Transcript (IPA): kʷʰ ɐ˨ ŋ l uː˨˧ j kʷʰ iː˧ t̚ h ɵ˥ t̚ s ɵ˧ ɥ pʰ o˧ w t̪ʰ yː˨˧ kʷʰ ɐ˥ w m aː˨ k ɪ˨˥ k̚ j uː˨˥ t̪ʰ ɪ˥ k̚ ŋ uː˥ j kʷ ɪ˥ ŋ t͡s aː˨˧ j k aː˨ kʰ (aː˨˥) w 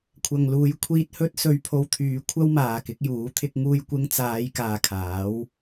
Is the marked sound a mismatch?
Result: no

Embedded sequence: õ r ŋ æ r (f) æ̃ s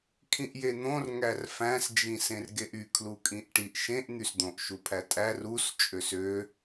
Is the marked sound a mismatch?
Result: no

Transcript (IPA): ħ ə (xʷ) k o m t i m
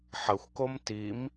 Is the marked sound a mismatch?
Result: no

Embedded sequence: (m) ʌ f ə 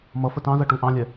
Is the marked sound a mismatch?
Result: no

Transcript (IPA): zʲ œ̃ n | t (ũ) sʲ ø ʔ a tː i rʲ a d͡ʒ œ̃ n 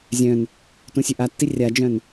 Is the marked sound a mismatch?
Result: no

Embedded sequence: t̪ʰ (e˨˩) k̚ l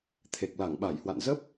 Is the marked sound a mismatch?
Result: no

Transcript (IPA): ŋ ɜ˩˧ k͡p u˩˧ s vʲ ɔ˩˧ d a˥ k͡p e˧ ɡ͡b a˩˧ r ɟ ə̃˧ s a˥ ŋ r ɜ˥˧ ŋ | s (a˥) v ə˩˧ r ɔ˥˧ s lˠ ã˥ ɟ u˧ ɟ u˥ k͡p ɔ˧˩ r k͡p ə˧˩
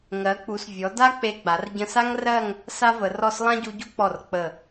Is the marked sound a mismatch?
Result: no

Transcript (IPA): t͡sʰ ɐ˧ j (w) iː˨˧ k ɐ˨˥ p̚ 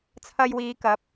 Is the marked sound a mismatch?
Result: no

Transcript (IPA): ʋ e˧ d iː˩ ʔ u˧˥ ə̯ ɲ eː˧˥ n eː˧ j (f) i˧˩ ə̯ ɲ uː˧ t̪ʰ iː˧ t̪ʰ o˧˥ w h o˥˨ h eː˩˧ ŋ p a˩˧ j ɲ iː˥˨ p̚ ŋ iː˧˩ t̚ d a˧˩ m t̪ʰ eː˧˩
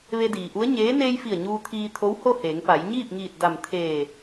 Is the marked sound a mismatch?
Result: no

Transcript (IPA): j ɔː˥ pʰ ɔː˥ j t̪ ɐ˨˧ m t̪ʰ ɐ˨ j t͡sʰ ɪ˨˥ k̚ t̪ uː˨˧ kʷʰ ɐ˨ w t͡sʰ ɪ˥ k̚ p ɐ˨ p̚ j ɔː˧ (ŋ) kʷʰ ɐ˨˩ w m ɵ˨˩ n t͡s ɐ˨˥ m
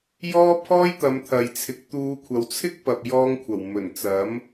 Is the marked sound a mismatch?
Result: no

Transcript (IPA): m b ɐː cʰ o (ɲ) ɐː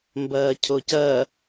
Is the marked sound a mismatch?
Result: yes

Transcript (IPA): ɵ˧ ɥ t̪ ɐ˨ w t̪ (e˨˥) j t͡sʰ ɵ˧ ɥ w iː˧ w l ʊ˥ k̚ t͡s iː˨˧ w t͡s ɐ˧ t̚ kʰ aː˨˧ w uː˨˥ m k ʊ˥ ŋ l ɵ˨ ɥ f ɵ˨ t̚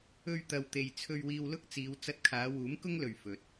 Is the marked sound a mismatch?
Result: yes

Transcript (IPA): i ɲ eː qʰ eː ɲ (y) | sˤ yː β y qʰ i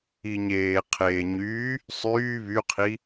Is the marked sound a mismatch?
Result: yes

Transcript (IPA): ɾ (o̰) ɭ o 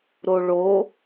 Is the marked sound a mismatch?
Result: yes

